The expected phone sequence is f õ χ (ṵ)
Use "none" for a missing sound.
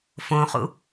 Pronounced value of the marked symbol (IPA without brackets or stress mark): ṵ